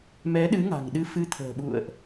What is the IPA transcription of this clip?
m ɛ˨˦ ɗ ɨ˨˦ ŋ a̤˨˩ ŋ ɗ ɨ˧ f ɨ˨˦ t̪ʰ ə̤ː˨˩ ɓ ṵ˧˨ ə̯ ʔ

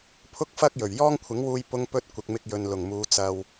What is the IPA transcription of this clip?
pʰ ʊ˥ k̚ f ɐ˥ k̚ j ɵ˨˩ ɥ j ɔː˥ ŋ kʷʰ ɪ˨˥ ŋ w uː˧ j p ʊ˥ ŋ p ɵ˥ t̚ kʷ ɪ˨ k̚ m ɪ˧ k̚ j ɵ˨ n l ʊ˨˩ ŋ m uː˨˧ t͡s ɐ˨ w

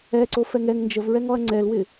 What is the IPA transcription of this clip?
ɛ ǀ o f ɛ ŋ ɛ ŋ n d͡ʒ ə v ɹ ɛ ŋ ɔ ɐ̯ ŋ͡ǀ ɛ l w ɪ

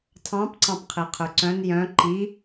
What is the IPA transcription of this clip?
tʰ ɑ̃ p ǀ ɑ̃ p qʰ i qʰ ʉ ǀ œ̃ n j œ̃ ǃ i

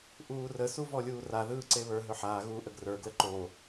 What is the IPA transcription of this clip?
ʔ uː r ə s u v ɔ lʲ uː r a ð ɯː ǀ e β ə˞ ɦ ɵ ħ aː ɣ uː ʔ ə ɡ r ə˞ ɡ l ə ǃ o

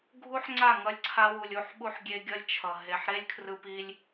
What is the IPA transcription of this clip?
ɡʱ u˦ ħ ŋ͡ǀ a˦˨ ŋ ʌ˧ lʲ ǀʰ a˧ w u˨ lʲ u˧ ħ ɓ u˦ ħ ɡʲ e˦ ɡʲ ʌ˦ lʲ t͡ʃʰ ʌ˨ ɦ e˨ ħ ɾ e˦ lʲ kʰ r ɯ˦ p i˦ lʲ

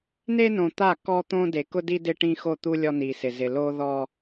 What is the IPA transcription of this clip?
n e˦ n õ˨ t̪ a˦˨ k ɔ˦ t̪ õ˦ d e˨ k ʊ˦ d i˦ d ɪ˦ ʈ ĩ˦ x o˦˨ t̪ u˦ lʲ ɔ˦ n i˨ s ɪ˨ z ɪ˨ l o˦ ð ɔ˦

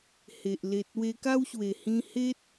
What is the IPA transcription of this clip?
h e˨ ʔ l e˨ t̚ w e˧ k a˦ w ɕ w e˨˩ h ĩ˧ h e˦ t̚

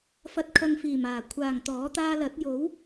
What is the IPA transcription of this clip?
f ɐ˨ t̚ kʰ ɐ˨ ŋ f iː˨˩ m aː˨˩ kʷʰ aː˨˩ ŋ t̪ ɔː˨˥ t̪ aː˧ l ɐ˨˥ t̚ j o˨˥ w

